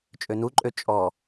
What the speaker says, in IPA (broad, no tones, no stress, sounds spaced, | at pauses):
t͡ʃʼ ø n u ǃʼ ø t͡ʃʼ ɔ